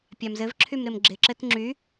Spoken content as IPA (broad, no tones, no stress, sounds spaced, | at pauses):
pʲ a m z ɘ v ǁʰ y m ɾ ɪ m ɡ͡ǁ ɪ ǁ ɘ t ŋ͡ǁ y